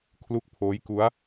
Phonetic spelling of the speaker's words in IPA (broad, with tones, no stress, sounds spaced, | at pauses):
kʰ l u˥˩ k̚ pʰ oː˦˥ j k u˦˥ a̯